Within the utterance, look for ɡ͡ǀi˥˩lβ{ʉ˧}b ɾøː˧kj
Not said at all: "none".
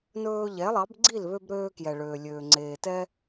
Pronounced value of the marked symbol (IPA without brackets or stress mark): ø˧